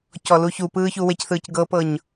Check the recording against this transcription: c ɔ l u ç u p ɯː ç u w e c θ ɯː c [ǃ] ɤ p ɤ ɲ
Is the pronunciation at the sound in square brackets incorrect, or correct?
incorrect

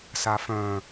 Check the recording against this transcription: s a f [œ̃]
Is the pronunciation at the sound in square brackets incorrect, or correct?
correct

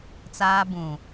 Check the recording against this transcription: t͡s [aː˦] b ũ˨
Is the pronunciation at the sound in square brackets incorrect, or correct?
correct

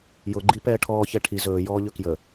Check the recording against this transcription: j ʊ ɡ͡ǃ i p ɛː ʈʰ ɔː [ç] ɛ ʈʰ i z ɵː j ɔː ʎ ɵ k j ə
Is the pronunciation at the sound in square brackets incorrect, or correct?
correct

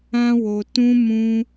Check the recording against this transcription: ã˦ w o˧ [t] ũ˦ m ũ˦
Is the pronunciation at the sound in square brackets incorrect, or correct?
correct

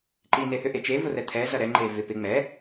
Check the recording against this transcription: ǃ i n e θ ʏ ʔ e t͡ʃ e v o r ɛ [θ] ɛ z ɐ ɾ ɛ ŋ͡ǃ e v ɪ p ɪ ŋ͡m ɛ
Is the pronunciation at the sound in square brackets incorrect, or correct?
incorrect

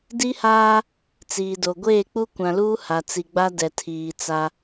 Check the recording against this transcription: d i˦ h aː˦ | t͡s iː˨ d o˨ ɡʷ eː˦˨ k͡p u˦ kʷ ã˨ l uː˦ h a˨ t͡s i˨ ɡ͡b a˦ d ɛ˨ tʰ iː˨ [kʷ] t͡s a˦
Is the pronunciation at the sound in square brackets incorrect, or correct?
incorrect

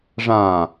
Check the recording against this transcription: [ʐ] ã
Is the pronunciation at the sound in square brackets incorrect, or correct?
correct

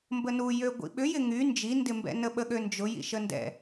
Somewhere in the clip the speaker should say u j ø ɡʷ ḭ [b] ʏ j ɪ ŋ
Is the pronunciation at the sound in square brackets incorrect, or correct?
incorrect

